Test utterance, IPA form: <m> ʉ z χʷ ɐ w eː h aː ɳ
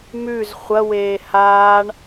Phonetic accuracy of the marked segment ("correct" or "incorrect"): correct